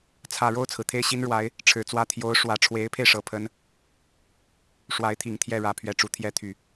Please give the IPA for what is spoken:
t͡sʰä˨˩ ɻo˥˩ʊ̯t͡sʰɹ̩˩ t̪ʰe˥˩ɪ̯ɕi˥n ɻwa˧˥ɪ̯ | ʈ͡ʂʰɻ̩˨˩t͡swä˥˩ t̪ʰjo˧˥ʊ̯ ʂwä˨˩ʈ͡ʂʰwe˧˥ɪ̯pʰe˧ɪ̯ ʂɤ˧˥pʰə˥n | ʂwa˧˥ɪ̯t̪ʰi˨˩ŋt̪ʰjɛ˥˩ ɻä˨˩ pʰɥɛ˥˩ʈ͡ʂu˧˥t̪ʰjɛ˥ t̪ʰy˥˩

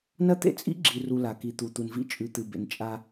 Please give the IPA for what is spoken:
nɐ˦t̪ḛ˦ t͡sʼḭ˦ɡ͡ǁi˨ru˨ la˨ki˨t̪u˨t̪u˨n vḭ˦t͡ʃʼʉ˨t̪ɨ˨bḛ˨n t͡ʃʼa˦

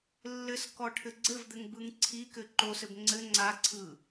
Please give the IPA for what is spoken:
lːɘskɔʈʰɘ ɡ͡ǀɘvd̪ɘŋbɯŋ ǀʰikɘ ǃosɘb ŋ͡ǀɘ ŋ͡ǀaǀʰɯ

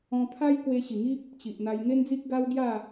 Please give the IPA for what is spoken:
ɔ̃˧t̪ʰa˦j kwe˧ɕi˨˩ŋi˦p̚ | t͡ɕi˨ʔn̪a˧j ŋe˦nd͡zi˦k̚ɡa˦w ɡja˥˧

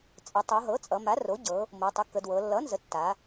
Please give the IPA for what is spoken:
t͡sʼə˩˧tˤo˩˧ɦɤ˩˥ t͡sʼʌ˩˧ma˩˥ro˩˥ɟɤ˩˧ | mo˩˧tˤə˩˥kːə˩˧dwɤ˩˧ lːʌ˩˥nzə˩˧ tːa˩˧

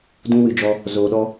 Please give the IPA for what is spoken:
dũ˦wɨ˧ d͡ʒɔ˦ | zoː˧ɗɔ˦

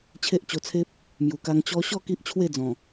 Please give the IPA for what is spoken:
t͡ɕʰe˦ʔt͡ɕo˧t͡sʰe˦p̚ | mju˨˩ka˧ŋ t͡ɕɔ˧ɕɔ˥˧ ki˦ʔt͡ɕʰwe˥˧d͡zɔ̃˨˩

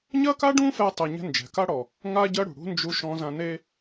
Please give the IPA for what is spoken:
ɲɐ˥ka˥ɖũ˥fɛ˧ tˤɛ˧ɲɛ̤˥ nd͡ʒɛ̤˩ka˥ɽɔ˩ | ŋa˥ɟɐ˥ɽṳ˩ ɽṳ˥ nd͡ʒu˧ ʃɔ̃˧zã˧ne˥

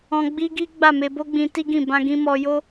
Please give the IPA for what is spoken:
ɔ̃˧ ɡ͡bi˦ɡi˦ ɡ͡ba˦˨me˧bo˦ɡ͡bĩ˧ ti˦ɡĩ˦˨ bã˧ɡĩ˧mɔ˧jo˦

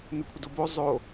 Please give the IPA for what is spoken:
nɵkʷʰədobo zˤo

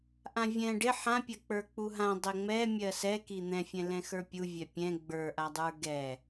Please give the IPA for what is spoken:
ʔãvʲɛ̃ ɖɪ ħãpʲɜ k͡pə˞k͡puɦã dˤɛŋ͡mɛ mʲɜsɛ kin̪ɛ̃fʲɛ̃ lɛ̃xə˞pʲu vʲɛpʲɛ̃ ɡ͡bə˞ʔadˤə˞ ɡɛ

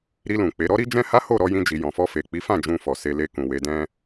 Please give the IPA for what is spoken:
ɾi˧lũ˨ k͡pe˨˦ ɾɔ˦ɾi˦d͡ʒɛ̃˦ha˦ ho˦˨ɾɔ˨˦jĩ˧d͡ʒi˨ jɔ̃˨fɔ˧ fe˨k͡pi˨˦fã˦˨ d͡ʒũ˧fɔ˨ se˧le˧ kũ˨we˨˦dɛ̃˦

